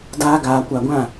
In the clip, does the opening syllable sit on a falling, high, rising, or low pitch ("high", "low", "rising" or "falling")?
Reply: high